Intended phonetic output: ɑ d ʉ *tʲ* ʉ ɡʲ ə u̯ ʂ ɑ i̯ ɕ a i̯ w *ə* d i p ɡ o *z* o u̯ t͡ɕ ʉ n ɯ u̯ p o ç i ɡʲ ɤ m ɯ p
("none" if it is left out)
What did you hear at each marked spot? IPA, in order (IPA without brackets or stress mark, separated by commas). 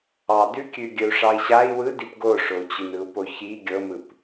kʲ, ɯ, ʂ